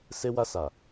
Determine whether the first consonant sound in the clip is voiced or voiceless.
voiceless